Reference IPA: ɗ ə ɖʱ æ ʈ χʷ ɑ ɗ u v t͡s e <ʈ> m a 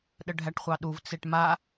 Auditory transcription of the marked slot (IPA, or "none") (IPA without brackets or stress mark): ʈ